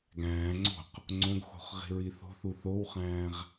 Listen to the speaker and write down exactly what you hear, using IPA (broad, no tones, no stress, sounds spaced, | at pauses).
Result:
ɡ æ̃ː ŋ͡ǀ o̤ q | ŋ͡ǀ õ ɡ x o̤ χ ʁ i̤ ɹ i θ o̤ θ u θ o w χ æ̃ː ʁ